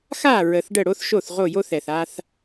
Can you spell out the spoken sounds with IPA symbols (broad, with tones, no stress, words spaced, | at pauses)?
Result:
xa˥˩ ɹə˨˩θɖə˥˩ɽo˥θ ʃo˥˩θ ʁo˥˩jo˥θɛ˨˩θ a˥θ